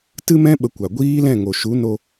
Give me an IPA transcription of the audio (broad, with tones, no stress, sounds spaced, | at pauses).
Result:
t ɨ˦ m ɛ̃˦ ɓ ə˧ kʷ a˨ ɡʷ iː˦ l ɛ̃˦˨ ŋ o˨ ʃ u˨˦ n o˧